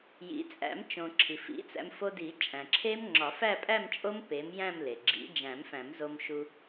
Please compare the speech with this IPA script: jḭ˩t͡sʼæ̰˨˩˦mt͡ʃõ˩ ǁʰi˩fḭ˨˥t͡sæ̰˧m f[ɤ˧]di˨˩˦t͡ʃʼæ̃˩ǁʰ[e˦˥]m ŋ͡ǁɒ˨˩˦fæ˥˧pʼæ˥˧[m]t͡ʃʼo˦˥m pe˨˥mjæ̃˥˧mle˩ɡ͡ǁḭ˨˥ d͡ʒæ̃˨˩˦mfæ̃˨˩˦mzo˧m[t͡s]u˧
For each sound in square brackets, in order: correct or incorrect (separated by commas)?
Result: incorrect, correct, correct, incorrect